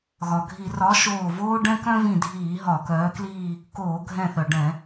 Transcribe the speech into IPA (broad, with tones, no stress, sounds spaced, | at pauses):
ɣ ɒ˩ ɡʱ i˧˩˧ r ɒ˨˥ ʃ oː˧˩ v oː˥ ɖ ɛ̃˥ k œ̃˥ v ĩ˧˩ dʱ iː˧˩˧ ɦ ɒ˧˩˧ k œː˨˥ k l iː˥˧ | k oː˧˩˧ ɡʱ ɛ̃˧˩ θ œ˩ ɖ ɛ̃˧˩˧